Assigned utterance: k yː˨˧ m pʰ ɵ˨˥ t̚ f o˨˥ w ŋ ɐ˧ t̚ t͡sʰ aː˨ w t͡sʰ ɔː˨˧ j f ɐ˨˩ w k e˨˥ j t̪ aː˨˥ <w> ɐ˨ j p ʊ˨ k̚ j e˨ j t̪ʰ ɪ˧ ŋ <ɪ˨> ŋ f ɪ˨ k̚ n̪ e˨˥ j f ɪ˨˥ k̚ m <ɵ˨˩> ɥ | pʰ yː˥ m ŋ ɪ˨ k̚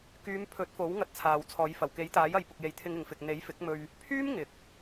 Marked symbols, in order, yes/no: no, yes, no

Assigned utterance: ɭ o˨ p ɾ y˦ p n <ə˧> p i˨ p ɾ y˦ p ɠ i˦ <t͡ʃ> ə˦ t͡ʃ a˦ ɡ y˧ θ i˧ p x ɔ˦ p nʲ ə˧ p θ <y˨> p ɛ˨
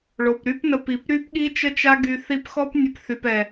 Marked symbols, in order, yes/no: yes, yes, yes

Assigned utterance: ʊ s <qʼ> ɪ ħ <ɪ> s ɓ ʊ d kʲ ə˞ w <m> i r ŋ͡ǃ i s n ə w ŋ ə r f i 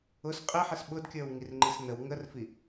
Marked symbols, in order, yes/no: yes, yes, no

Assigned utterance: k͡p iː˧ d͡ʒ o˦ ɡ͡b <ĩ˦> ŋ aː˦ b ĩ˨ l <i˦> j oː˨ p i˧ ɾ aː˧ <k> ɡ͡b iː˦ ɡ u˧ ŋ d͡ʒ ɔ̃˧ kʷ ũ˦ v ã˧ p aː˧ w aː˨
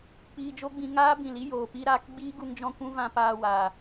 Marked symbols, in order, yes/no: no, yes, yes

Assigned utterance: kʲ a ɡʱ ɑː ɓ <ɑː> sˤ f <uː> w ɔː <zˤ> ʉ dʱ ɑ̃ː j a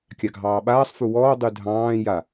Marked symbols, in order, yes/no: no, no, no

